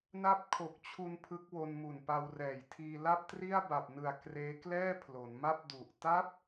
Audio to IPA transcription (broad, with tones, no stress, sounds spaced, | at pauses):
n a˦˥ p̚ kʰ o˨˩ k̚ t͡ɕʰ u˧ n pʰ ɯ˦˥ k̚ w o˧ n m u˨˩ n p a˧ w r ɛː˨˩ j tʰ iː˧ l a˥˩ p̚ t r i˥˩ a̯ b a˨˩ p̚ n ɯ˨˩ a̯ k r eː˦˥ k l ɛː˥˩ pʰ l o˩˦ n m a˥˩ p̚ d u˨˩ ʔ t a˦˥ p̚